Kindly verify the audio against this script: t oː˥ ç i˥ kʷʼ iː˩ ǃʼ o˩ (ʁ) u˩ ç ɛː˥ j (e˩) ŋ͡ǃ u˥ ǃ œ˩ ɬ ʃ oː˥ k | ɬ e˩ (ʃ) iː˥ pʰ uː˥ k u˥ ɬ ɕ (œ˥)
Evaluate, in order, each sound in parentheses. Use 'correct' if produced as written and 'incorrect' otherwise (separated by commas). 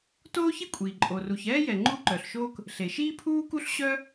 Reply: incorrect, incorrect, correct, correct